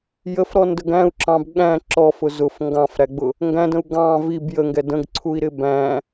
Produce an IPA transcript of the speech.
j ə f ɾ ɔ n d ə ɡ æ̃ u̯ ǁ ɑ̃ b ɠ æ̃ ǁ ɔ f ʊ z ʊ f ŋ ɡ ɑ̃ f ɾ æ ɡ͡b ʊ | ŋ ɡ æ̃ d ə̃ u̯ ɡ ɑ̃ v i b j ə ŋ ɡ ɛ d ə̃ ɡ ǀʰ u i̯ ɾ ɪ b æ̃

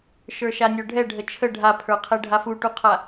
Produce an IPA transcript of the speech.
ʃ ə˞ ʃ a nʲ ə˞ ɖʱ ɛ ɖʱ ə t͡ʃʰ ə ɖʱ a pʰ ə˞ qʰ ɛ ɖʱ a f u ʈ u qʰ a

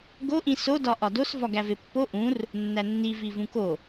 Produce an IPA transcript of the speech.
ɡ o ʔ ĩ s o d ɒ ʔ ɒ d o s v ɒ ɡ æ v e pː o ʔ ũ r | nː æ nː i v i v ũ k o

